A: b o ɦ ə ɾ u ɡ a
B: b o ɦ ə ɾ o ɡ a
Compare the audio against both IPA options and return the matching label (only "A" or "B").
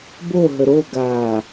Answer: B